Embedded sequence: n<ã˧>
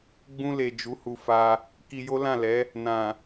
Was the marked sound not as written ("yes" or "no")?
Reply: yes